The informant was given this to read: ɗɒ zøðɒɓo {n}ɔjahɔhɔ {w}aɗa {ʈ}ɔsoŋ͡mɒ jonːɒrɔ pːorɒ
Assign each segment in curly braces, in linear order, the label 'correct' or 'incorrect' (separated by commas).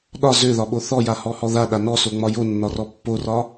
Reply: incorrect, incorrect, incorrect